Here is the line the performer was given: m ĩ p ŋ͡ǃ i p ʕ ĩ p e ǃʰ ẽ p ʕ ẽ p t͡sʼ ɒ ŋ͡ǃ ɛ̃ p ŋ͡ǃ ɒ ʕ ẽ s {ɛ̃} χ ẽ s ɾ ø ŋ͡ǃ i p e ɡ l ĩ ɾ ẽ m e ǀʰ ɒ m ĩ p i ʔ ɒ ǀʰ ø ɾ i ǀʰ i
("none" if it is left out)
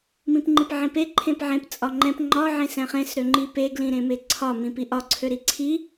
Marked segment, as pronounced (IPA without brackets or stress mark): ɛ̃